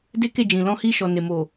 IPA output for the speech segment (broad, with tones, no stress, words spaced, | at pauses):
de˦ke˦˨d͡ʒĩ˨ lɔ̃˧hi˧ʃɔ˨ ne˨mo˨